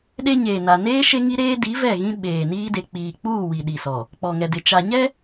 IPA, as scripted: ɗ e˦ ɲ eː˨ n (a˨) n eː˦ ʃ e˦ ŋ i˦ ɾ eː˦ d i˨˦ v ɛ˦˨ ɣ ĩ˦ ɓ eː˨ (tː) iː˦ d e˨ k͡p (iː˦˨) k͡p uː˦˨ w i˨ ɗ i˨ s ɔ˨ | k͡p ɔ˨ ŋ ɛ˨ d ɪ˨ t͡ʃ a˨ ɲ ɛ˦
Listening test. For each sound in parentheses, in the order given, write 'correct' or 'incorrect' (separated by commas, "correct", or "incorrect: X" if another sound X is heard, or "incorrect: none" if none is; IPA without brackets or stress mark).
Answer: correct, incorrect: n, incorrect: iː˨